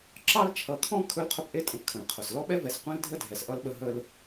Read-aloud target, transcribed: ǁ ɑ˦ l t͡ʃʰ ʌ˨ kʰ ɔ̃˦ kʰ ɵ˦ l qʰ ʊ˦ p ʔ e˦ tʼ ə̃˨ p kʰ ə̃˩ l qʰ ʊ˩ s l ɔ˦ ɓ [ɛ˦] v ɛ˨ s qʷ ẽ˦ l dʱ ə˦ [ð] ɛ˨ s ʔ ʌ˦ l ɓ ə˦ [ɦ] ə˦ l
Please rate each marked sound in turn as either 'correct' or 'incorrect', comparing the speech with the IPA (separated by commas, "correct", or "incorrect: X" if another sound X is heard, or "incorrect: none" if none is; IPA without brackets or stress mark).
correct, incorrect: dʱ, correct